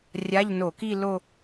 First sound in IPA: rʲ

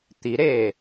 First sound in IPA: t̪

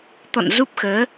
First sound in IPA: t̪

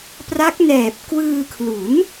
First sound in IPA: p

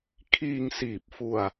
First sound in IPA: kʰ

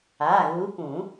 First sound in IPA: a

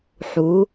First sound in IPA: ħ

